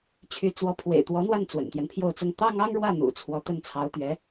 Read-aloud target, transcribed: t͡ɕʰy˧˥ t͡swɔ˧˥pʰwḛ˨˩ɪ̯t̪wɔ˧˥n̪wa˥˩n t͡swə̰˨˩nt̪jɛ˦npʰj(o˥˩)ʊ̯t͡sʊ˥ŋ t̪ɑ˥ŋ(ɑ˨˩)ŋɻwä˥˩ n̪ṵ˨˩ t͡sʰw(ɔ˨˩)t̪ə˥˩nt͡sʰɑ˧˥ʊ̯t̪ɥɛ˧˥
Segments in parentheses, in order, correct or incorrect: correct, incorrect: ɑ˥, incorrect: ɔ˧˥

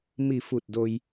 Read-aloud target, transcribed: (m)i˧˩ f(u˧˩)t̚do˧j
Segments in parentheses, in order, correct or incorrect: correct, correct

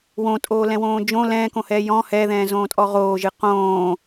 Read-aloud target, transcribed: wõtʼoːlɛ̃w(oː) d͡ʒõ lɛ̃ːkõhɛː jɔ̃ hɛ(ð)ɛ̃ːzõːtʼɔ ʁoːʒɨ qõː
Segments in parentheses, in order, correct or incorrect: incorrect: õː, correct

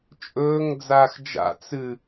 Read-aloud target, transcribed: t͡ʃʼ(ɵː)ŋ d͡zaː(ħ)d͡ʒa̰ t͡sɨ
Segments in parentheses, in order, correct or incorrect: correct, incorrect: x

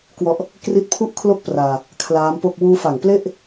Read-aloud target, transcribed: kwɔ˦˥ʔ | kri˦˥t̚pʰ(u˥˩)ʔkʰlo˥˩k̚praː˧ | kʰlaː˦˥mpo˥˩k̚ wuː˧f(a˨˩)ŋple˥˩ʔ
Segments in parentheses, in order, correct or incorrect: correct, correct

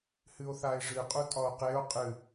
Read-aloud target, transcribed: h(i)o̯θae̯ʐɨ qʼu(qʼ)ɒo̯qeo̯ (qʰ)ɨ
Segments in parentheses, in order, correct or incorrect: incorrect: ɨ, incorrect: tʼ, incorrect: qʼ

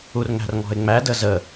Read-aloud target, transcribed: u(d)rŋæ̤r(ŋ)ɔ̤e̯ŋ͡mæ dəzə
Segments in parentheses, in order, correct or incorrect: incorrect: none, correct

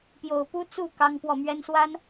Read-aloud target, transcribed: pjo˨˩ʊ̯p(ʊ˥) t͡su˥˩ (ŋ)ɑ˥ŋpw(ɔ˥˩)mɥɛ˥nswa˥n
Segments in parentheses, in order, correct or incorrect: incorrect: u˥, incorrect: k, correct

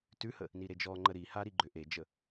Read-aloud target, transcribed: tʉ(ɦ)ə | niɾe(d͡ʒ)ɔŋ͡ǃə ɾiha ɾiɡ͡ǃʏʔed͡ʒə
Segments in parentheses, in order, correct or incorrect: incorrect: h, correct

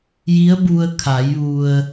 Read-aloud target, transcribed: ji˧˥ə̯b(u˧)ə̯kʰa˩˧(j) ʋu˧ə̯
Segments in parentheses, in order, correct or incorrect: correct, correct

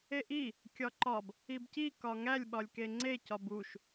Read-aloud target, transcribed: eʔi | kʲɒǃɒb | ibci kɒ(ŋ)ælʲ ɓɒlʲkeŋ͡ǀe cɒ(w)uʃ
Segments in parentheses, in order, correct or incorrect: correct, incorrect: b

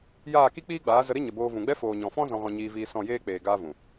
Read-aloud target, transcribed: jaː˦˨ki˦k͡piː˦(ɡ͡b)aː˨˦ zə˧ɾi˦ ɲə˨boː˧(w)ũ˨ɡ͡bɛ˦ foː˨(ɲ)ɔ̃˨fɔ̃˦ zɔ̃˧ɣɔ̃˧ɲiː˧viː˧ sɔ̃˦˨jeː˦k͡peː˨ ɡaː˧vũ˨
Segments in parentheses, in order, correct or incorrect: correct, incorrect: v, correct

